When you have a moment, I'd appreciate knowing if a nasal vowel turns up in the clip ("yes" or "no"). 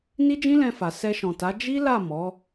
yes